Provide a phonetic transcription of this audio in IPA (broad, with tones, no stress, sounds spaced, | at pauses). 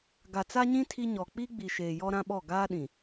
ɡ a˨ t͡s a˦ ɲ ĩ˦ tʰ i˦ ɲ ɔ˨ k͡p i˦ ɡ͡b i˨ ʃ eː˨ j ɔ˦ ɾ ã˦ ɓ ɔ˦˨ ɡ aː˦ ɗ ĩ˨